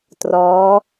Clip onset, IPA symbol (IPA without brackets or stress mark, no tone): t